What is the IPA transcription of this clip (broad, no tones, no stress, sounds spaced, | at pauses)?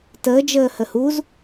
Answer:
t əː d͡ʒ əː h ə h u z